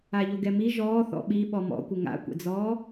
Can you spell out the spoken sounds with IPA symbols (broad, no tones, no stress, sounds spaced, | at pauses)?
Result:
a ʎ o ɡ ɛ m i ʒ ɔː θ ɔ̰ ɓ i ɓ ɔ m ɔ̰ kʷ ɪ ŋ a̰ kʷ ɛ̰ d͡z ɔː